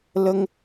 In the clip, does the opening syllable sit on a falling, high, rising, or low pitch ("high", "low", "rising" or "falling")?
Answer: high